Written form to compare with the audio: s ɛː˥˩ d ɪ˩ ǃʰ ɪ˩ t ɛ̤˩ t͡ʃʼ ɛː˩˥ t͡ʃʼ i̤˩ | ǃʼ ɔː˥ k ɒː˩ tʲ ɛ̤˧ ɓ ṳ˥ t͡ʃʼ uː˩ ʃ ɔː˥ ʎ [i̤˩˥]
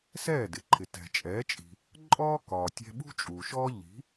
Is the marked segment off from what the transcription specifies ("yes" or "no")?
no